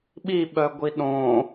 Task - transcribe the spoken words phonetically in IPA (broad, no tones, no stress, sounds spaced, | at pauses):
ɓ i ɓ œ ɡʷ i ɗ õ